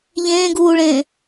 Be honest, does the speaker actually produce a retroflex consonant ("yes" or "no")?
yes